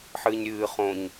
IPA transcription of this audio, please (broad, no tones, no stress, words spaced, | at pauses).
ħɨːɲɾʲɨː χõɲ